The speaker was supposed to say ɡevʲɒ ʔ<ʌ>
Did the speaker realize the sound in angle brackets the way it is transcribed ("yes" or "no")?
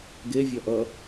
yes